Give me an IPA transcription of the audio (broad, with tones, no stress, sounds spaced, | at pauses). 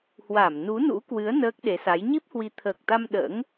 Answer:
h w a˧˩ m n u˨˦ n ṵ˧˥ k w ɨ˨˦ ə̯ n əː˦˥ k̚ ɗ e˨˦ s a˨˦ j ɲ i˦˥ p̚ h w i˨˦ t̪ʰ əː˨˩ k̚ t̪ a˧ m ɗ ə̰ː˧˥ ŋ